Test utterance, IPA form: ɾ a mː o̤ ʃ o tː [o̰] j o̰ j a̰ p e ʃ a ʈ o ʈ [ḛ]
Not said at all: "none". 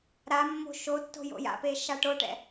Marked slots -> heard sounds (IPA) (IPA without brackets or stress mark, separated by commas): o̤, ɛ̰